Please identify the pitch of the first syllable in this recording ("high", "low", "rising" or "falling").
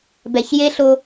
low